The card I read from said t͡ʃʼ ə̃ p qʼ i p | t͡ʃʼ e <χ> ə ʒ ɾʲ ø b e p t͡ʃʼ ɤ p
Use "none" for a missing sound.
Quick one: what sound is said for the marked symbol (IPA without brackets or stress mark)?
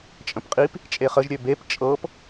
χ